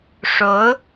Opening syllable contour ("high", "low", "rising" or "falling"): rising